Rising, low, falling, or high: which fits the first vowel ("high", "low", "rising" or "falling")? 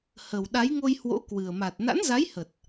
low